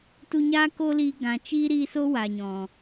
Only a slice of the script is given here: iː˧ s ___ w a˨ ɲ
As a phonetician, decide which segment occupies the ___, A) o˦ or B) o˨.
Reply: A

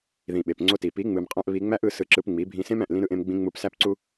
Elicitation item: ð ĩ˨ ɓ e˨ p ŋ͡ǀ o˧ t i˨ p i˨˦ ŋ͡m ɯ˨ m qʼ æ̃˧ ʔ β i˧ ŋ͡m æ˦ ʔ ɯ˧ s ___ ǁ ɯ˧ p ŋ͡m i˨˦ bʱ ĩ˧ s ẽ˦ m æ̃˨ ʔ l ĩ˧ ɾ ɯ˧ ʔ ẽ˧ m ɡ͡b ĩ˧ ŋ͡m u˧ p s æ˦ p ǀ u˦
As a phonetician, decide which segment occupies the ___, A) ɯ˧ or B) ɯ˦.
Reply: A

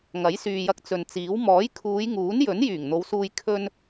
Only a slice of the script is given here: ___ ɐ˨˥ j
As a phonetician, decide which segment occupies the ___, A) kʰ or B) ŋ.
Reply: B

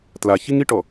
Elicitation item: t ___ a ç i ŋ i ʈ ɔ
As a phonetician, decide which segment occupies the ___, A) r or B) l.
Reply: B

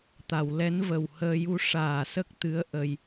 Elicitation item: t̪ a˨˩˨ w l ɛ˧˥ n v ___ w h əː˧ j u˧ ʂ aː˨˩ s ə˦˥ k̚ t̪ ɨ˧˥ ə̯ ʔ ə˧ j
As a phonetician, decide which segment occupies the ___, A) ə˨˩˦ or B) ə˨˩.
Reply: B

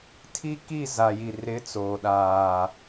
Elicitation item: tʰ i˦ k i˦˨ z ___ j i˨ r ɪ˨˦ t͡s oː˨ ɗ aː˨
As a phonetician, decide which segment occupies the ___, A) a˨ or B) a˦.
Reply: A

